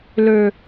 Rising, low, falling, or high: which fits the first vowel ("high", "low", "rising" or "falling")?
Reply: low